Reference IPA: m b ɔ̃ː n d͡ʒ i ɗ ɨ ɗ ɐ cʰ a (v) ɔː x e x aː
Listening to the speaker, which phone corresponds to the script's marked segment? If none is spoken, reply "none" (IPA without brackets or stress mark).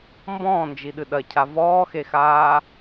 v